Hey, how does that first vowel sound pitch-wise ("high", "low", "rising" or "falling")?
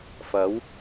rising